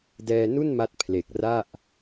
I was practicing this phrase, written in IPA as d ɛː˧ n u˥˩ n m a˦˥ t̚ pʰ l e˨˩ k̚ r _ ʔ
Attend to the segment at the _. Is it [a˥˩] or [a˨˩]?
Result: a˥˩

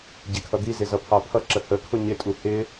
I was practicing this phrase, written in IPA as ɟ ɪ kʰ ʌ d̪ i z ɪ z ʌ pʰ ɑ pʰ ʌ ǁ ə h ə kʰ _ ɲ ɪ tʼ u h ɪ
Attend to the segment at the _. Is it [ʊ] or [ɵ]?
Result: ʊ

